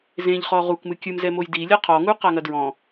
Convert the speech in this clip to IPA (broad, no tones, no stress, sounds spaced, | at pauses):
z ẽ ʎ χ ɔ ʁ u k m ɨ kʲ ɨ m z ɛ m o j d i lʲ ɐ qʰ ɔ ŋ u q a ŋ ɐ d ɹ ɔ̃